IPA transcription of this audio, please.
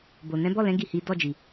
b o˨ n ɛ̃˨˦ b ɔ˦˨ l ɛ̃˨˦ ɡ i˦˨ h i˨˦ d ɔ˦˨ d͡ʒ i˨

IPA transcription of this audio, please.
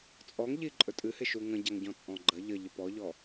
t͡sʼ ɔ ŋ ʎ i ǃʼ ɵ tʼ ɨ h ɪ ʃ u ŋ ə̃ ɟ a ŋ ɟ ɔ̃ t͡sʼ ɔ̃ ɡ͡ǃ ə ʎ ə ʎ ɪ p ɔ ʎ ɔ

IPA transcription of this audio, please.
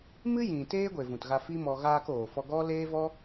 m ɨ˦ j ĩ˨ t eː˦ ɡʷ e˨ v ũ˨ t ɣ a˧ f i˦ m ɔ˧ ɣ aː˧ k oː˨ f ɔ˧ ɡ ɔ˦ l eː˦ v ɔ˦

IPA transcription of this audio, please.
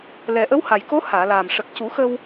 l ɛ˨˩ ʔ ə˧˥ w h a˨˩ j k o˧˥ h aː˨˩˨ l aː˨˩ m ʂ ə˨˩ k̚ c u˨˩˦ x ə˧ w

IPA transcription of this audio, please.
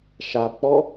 ʃ a b k͡p ɔ

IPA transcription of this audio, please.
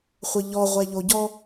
χʷ ə ʎ ɔ ʁʷ ɛ ʎ o ɟ ɔ

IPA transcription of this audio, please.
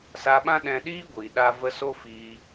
s a˧ ɓ ã˦ ɗ ɛ̃˧ ɗ iː˦ ɡʷ iː˨ ɗ a˧ v ə˧ s o˦ f iː˧

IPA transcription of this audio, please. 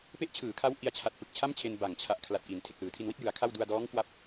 p e˥˩ ʔ t͡ɕʰ ɯː˩˦ kʰ a˦˥ w ʔ i˧ a̯ t͡ɕʰ a˨˩ t̚ p ɯ˨˩ k̚ t͡ɕʰ a˥˩ m t͡ɕʰ e˧ n b a˨˩ ŋ t͡ɕʰ a˨˩ ʔ kʰ l a˨˩ t̚ ʔ i˩˦ n tʰ e˨˩ k̚ l ɯː˨˩ tʰ i˧ n w i˥˩ t̚ j ɯ˩˦ a̯ kʰ a˥˩ w d u˧ a̯ d ɔː˦˥ ŋ k w a˥˩ p̚

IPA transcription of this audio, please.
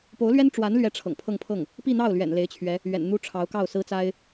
p o˧˥ ʊ̯ l ɥ ɛ˥ n ʈ͡ʂ w a˧˥ n l ɥ ɛ˥ ʈ͡ʂʰ ɤ̰˨˩ ŋ pʰ ɤ˥˧ ŋ pʰ ɤ˥˩ ŋ | p i˥˧ n̪ ɑ˥˩ ʊ̯ l ɥ ɛ̰˨˩ n l e˧˥ ɪ̯ t͡ɕʰ ɥ ɛ˧˥ | ɥ ɛ̰˨˩ n n̪ u˥ ʈ͡ʂʰ ɑ˧˥ ʊ̯ k ɑ˥˩ ʊ̯ s ɹ̩˥ t͡s a˥ ɪ̯

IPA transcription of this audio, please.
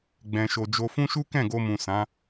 ɡ͡b ɛ̃˧ ʃ o˧ d͡ʒ o˧ f ũ˦ ʃ u˦ k ɛ̃˦˨ ɡ o˧ m ũ˨ s ã˨˦

